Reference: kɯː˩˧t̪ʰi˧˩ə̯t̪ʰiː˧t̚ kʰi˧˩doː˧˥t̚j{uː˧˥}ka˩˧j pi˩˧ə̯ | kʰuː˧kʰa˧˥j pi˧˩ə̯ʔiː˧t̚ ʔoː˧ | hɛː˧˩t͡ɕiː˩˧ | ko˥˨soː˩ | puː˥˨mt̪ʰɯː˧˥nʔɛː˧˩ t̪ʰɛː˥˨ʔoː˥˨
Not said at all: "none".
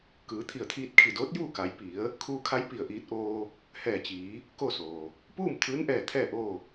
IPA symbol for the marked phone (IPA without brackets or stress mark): uː˥˨